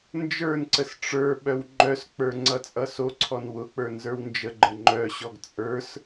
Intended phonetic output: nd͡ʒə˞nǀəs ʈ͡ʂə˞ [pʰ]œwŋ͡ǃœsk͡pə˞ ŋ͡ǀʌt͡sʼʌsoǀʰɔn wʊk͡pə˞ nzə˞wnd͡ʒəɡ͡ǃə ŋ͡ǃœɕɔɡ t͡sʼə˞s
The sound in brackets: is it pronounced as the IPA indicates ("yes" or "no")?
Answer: no